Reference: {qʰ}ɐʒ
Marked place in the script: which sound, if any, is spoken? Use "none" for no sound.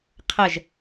qʰ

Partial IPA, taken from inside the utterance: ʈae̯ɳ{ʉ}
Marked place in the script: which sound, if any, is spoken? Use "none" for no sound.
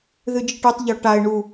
u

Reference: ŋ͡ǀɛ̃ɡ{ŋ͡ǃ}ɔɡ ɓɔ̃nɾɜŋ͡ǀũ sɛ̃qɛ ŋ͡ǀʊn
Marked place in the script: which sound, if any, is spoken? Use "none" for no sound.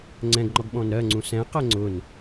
ŋ͡ǃ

